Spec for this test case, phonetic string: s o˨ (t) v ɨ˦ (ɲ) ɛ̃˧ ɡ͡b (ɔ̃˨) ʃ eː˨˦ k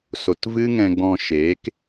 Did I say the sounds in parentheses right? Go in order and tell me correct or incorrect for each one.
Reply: correct, incorrect, incorrect

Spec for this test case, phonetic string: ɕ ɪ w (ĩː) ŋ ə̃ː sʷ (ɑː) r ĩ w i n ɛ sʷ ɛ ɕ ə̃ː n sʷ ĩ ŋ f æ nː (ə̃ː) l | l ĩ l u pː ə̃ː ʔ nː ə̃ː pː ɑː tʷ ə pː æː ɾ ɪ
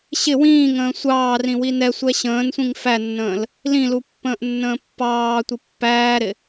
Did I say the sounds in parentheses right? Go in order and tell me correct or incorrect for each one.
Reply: correct, correct, correct

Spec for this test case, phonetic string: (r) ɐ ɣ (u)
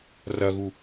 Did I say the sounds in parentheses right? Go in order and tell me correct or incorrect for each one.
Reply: correct, correct

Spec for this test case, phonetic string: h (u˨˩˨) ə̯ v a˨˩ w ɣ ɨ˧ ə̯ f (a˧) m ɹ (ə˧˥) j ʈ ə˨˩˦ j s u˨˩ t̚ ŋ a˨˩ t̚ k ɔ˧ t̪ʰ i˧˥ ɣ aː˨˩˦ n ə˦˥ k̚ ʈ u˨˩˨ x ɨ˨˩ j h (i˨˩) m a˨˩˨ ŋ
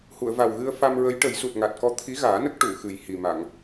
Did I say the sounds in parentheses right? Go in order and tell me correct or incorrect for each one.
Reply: correct, correct, correct, correct

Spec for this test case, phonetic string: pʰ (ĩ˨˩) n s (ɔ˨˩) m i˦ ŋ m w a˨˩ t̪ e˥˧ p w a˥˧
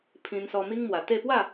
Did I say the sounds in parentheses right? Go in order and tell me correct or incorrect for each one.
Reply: incorrect, incorrect

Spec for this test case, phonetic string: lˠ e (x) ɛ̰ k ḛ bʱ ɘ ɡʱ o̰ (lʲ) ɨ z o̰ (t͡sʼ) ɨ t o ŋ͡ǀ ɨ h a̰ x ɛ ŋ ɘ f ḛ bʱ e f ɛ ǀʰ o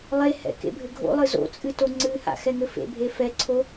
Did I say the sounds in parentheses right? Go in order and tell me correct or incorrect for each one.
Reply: incorrect, incorrect, correct

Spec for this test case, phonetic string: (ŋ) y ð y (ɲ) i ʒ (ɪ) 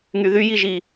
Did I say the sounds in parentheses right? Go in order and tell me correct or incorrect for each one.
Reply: correct, incorrect, incorrect

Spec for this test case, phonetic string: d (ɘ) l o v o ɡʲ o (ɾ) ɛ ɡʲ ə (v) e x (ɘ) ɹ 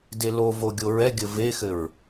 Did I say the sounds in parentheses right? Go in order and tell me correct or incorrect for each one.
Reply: incorrect, incorrect, correct, correct

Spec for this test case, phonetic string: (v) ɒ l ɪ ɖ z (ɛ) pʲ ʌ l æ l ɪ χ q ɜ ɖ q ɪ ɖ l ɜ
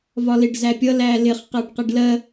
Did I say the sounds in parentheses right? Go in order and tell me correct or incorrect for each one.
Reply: correct, incorrect

